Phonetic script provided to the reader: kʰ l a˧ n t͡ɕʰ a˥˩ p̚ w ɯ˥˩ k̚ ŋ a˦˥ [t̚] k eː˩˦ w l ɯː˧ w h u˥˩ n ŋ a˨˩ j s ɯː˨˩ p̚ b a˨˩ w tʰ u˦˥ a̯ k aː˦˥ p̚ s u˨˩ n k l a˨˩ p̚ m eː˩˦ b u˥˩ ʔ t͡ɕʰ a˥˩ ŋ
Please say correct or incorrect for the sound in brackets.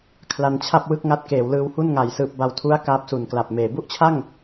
correct